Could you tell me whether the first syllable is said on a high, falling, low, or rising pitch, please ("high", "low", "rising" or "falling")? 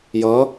rising